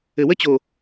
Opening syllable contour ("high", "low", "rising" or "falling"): low